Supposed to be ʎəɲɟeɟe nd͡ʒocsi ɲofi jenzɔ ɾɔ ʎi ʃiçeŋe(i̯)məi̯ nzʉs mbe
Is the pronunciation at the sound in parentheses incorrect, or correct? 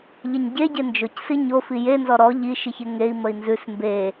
correct